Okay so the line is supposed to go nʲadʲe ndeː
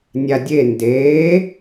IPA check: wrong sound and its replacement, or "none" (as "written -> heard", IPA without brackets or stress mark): none